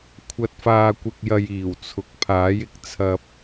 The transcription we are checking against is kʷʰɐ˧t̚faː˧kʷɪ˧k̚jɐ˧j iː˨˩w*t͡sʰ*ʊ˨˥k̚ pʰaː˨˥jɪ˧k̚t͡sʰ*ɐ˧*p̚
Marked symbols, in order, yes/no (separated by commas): yes, yes